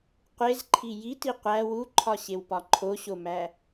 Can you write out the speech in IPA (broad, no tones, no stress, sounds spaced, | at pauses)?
qʷ e z ǃʰ i j i t i qʷ æ w u ǃʰ ɒ ɕ e w p ɒ ǃʰ o ɕ o m æ